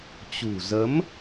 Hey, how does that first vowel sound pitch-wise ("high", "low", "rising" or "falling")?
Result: low